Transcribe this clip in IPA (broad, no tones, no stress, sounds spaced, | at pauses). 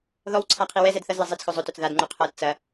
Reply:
ð ɔ w ǀʰ a qʰ i w ɛ z ɛ d θ ɐ z l ɐ zˤ i t͡s x ɵ zˤ ɵ t ɵ t͡s ð a d ŋ͡ǃ u qʰ ɤ t t͡s ɐ